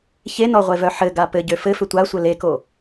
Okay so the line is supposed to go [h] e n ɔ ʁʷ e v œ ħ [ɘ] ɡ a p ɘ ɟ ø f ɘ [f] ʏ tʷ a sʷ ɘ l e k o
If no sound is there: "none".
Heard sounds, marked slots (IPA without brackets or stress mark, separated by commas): ç, ɘ, f